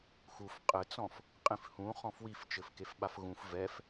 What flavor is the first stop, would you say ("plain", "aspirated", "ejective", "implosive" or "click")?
ejective